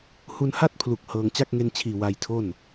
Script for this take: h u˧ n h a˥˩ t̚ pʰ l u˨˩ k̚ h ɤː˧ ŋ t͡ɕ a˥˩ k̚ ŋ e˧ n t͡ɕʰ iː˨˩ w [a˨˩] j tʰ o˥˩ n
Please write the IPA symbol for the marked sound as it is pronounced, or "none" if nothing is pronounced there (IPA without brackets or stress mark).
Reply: a˧